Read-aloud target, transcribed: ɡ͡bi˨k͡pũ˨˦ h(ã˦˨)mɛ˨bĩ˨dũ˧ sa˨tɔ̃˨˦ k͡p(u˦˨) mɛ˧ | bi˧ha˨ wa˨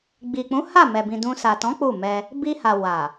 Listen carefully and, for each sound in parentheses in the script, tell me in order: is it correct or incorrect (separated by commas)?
incorrect, correct